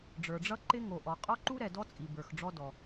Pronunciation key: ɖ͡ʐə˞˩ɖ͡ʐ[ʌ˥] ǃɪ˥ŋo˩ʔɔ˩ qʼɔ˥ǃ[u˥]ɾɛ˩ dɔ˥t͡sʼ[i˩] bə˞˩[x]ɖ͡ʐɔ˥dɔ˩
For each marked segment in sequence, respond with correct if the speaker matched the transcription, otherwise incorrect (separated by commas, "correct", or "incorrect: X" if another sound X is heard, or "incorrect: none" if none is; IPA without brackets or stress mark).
correct, correct, correct, correct